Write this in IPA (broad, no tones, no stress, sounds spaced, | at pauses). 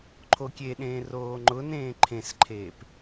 ǃʰ o kʲ e ɗ ẽː r oː ŋ͡ǃ ʊ n ẽː ǃʰ ẽ s ǃʰ eː p